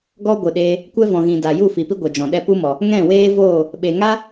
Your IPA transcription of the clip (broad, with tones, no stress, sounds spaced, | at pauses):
ɡ ɔ˦ ɡʷ ɨ˨ ɗ eː˧ | kʷ ɛ˦ v ɔ̃˨ ɣ ĩ˨ d a˨ j u˦˨ f i˨ p i˦ ɡʷ ɛ˨ d͡ʒ ɔ̃˨ ɗ ɛ˦ p u˦ m ɔ˨ | ŋ ɛ̃˦˨ w eː˦ v oː˦˨ | ɓ e˨ ŋ a˦